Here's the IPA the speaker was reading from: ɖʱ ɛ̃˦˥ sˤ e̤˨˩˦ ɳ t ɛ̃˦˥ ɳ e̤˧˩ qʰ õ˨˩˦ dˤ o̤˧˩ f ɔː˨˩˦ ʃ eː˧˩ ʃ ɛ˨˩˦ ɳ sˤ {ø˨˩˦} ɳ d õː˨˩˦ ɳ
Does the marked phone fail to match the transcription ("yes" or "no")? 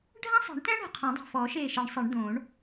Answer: yes